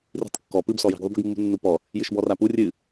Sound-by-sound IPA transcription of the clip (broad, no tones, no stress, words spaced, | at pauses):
ri̤tˤkːɔ pɨbsɔ ji̤ɡðˤubi̤ɡmːṳ nːupɔ | jɨʃbɔrapu rʲɨ